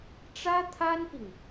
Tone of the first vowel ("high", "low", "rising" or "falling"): high